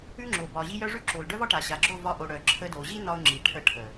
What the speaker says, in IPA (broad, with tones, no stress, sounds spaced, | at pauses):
ʉ˦ ŋ͡ǁ o˨ b ɒ˨ ʑ i˧ j œ˦ ʐ ʉ˦ ǁ o˨ l ɖ œ˦ v ɒ˦ ʈ a˨ ɕ a˨ ɡ͡ǁ o˦˨ v ɒ˧ ʔ o˨ ɽ œ˨ ǁʰ ə˧ d o˨ ʑ i˦ n ɒ˦ ʊ̯ ŋ͡ǁ i˨ ʈʰ ə˧ ʈʰ ə˨